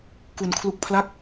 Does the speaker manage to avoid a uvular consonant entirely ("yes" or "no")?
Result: yes